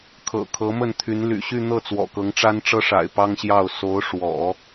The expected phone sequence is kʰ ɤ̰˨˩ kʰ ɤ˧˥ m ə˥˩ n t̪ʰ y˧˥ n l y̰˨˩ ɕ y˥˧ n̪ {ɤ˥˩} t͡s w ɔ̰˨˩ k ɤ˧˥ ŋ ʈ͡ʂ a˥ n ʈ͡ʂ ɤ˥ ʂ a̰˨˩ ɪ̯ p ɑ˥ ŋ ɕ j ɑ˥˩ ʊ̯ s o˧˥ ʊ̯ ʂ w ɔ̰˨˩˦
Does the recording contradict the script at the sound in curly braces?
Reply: no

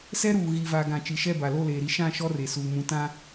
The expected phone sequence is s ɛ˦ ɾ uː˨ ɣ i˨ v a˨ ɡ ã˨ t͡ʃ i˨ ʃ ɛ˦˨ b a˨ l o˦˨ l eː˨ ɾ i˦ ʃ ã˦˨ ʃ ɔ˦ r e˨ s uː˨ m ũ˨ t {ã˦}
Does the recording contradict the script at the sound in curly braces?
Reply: no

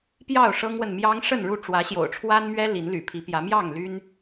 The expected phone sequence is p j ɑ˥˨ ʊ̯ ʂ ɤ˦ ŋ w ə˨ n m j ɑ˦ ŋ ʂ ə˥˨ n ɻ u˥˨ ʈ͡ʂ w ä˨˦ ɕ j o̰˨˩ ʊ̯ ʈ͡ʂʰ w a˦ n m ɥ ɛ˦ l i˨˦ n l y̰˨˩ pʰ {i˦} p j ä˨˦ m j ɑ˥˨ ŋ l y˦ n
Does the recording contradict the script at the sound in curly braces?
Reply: yes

